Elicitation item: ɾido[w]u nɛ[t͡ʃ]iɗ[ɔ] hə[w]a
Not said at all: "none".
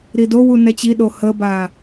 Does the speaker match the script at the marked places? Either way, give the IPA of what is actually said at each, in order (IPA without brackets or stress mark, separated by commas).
w, t͡ɕ, o, b